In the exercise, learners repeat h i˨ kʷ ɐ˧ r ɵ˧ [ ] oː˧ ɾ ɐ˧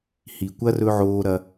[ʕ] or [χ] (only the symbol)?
ʕ